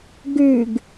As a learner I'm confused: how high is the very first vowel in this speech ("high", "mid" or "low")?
high